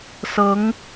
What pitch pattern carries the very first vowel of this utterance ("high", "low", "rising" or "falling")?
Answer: rising